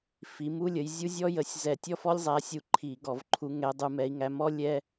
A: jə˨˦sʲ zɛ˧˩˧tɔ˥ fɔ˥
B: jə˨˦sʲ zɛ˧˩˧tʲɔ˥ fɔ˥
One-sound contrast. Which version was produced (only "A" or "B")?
B